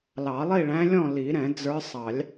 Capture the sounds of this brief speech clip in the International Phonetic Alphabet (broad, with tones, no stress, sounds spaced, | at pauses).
l ɑ˨˩˦ lˠ i˥˨ ɭ æ̃˧˥ lʲ ɔ̃˥˨ l i˨˩˦ ɾ ɛ̃˨˩˦ d͡z ə˞˧˥ sˤ ɑ˨˩˦ lʲ